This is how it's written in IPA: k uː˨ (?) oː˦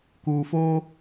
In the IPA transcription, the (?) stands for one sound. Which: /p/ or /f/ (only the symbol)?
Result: f